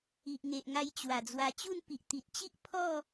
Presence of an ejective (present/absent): absent